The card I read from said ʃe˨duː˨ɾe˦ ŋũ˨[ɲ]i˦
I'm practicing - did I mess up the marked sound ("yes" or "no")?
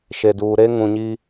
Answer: no